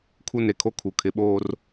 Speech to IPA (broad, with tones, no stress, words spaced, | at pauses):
kʰu˦ne˨kʰo˦ kʰu˨ kʰɪ˨˦ɓoː˦r